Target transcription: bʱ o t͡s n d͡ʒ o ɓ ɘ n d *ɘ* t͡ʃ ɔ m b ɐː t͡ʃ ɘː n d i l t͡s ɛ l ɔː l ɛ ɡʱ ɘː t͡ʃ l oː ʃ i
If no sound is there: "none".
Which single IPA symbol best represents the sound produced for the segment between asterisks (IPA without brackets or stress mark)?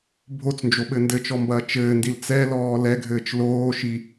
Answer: ɘ